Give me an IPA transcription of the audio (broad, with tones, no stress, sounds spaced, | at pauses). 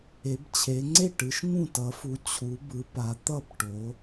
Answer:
e˩˧ b t͡ɕʰ e˩˧ ŋ͡ǀ e˥˩ ʈ ɯ˩˧ ʃ ŋ ũ˥˩ t ʌ˩˧ f u˩˧ t͡ɕʰ u˩˧ b ɯ˩˧ p a˩˧ t̪ ʌ˥˩ b ʈ o˩˧